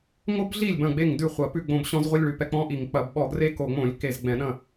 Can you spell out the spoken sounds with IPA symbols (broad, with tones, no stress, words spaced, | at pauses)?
ŋo˦bɮi˥˩lʲ bɐ̃˥˩ɡ͡be˥˩ŋdʉ˥˩χʷɐ˧˩˧ pʉ˥˩ɡ͡bõ˧˩b ɕɔ̃˦zʁʷi˦lʲ ɭʉ˧˩pɛ˥˩k͡pɔ̃˦ʔi˧˩˧ŋ k͡pɐ˧˩˧bɓɔ˧˩˧ɡre˦ ko˧˩˧ŋ͡mõ˧˩˧lʲ ke˥˩z ɡ͡bɛ̃˧˩˧ɗɐ̃˥˩